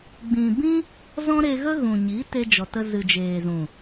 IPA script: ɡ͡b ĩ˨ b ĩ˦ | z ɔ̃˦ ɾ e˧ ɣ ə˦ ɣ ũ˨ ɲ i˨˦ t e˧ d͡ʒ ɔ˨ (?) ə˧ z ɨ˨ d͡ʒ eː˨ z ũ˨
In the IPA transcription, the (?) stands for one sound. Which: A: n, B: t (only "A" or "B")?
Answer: B